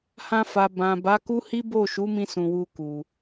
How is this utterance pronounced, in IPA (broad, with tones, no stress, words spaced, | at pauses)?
hã˧fa˨ bã˨ ba˨˦ku˦hi˦ bo˦˨ʃu˨˦mĩ˧ sũ˨wu˧ku˨